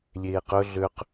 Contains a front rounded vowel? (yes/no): yes